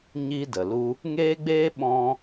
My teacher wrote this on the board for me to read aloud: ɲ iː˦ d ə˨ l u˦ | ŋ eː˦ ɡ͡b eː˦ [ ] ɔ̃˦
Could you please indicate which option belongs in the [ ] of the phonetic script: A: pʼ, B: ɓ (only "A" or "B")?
B